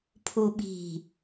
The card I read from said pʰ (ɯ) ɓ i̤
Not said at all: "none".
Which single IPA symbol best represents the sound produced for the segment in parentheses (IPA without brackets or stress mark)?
u